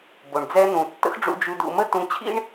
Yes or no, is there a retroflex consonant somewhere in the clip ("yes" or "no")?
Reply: yes